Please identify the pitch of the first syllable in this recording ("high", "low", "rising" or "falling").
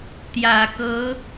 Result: low